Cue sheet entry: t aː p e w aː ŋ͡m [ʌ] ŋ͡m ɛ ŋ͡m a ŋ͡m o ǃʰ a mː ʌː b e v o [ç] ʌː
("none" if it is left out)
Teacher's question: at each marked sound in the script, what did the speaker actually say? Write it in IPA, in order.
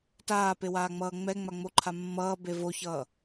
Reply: ʌː, ç

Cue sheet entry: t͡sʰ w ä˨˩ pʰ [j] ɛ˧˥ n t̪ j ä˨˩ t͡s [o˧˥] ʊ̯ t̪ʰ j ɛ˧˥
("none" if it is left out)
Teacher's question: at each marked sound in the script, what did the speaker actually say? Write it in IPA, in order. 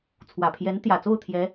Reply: j, o˥˩

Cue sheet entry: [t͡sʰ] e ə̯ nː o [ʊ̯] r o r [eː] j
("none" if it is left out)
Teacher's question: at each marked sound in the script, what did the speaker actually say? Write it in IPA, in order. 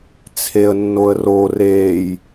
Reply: t͡sʰ, ə̯, eː

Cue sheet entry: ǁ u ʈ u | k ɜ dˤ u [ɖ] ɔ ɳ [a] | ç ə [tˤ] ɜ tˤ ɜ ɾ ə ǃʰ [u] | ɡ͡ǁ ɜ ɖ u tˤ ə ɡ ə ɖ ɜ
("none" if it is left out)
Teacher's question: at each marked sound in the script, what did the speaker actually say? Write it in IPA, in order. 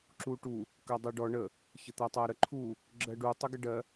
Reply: ɖ, ə, t̪, u

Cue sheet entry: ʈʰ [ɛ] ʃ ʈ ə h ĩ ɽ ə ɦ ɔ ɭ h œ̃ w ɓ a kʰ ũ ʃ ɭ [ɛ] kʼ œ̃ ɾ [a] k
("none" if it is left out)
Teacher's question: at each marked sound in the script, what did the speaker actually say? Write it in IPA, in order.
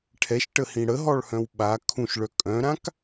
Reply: ɛ, œ, ã

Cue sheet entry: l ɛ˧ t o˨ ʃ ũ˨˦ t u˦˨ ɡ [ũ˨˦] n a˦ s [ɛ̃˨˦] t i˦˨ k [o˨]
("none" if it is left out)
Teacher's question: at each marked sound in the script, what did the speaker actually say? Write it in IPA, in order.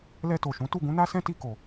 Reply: ũ˨˦, ɛ̃˦, o˨

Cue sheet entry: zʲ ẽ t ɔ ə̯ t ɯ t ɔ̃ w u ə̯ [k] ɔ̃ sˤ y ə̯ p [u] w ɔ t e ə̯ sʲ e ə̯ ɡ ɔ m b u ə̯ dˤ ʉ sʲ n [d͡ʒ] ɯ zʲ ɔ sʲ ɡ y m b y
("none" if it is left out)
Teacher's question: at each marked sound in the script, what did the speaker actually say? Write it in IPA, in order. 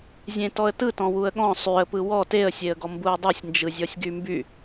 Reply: ɠ, ɯ, d͡ʒ

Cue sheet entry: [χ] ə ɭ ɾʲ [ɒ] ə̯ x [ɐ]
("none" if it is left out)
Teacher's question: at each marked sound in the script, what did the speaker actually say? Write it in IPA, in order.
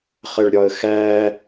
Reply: χ, ɒ, æ

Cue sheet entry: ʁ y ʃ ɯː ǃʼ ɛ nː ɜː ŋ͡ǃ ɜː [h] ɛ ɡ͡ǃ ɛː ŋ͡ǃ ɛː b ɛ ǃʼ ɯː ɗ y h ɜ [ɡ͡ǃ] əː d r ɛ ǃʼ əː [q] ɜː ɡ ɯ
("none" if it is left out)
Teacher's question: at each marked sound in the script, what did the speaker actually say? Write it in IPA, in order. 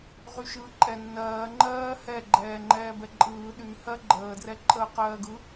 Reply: h, ɡ͡ǃ, q

